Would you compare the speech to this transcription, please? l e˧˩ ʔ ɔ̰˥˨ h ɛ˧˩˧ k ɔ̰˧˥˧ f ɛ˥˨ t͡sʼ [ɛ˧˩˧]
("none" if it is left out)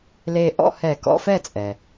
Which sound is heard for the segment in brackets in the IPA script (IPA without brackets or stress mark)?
ɛ˩